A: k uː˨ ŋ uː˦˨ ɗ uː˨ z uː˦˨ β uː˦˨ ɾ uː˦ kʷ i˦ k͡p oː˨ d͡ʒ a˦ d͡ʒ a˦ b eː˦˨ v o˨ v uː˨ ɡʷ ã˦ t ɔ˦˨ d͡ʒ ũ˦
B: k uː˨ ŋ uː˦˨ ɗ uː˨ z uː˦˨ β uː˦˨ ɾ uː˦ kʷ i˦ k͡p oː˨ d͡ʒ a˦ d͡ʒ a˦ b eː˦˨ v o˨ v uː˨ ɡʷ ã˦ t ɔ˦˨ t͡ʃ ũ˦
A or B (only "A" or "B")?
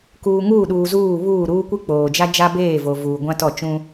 B